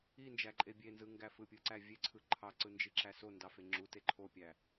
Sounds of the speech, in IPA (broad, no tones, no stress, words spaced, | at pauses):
ind͡ʒæǃʼe bʲenzɯŋɡæ fɯpʲɯǀæ vʲeǀʰɯ ǃʰɑǀɯnd͡ʒiǁæ sondɑfe ŋ͡ǁute ǃʰopʲæ